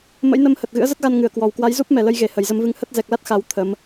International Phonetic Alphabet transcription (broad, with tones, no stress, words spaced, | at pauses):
mə̰˧˥jnə˧mhə˨˩t̚ ɣɨ̰˧˥ə̯zə˦˥t̚ɣa˧n ŋɨ˧˩ə̯kwɔ˨˩wkwa˨˦jzu˦˥p̚ mɛ˨˩lə˧jɣe˨˩ hə˨˩jzə˧mvɨ˧ŋ hə˦˥t̚ zɛ˨˩k̚la˦˥t̚ xa˨˦w t̪ʰə˨˦m